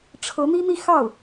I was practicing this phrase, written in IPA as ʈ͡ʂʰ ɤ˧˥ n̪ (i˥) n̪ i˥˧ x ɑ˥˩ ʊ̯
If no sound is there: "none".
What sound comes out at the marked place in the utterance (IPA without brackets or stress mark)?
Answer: i˥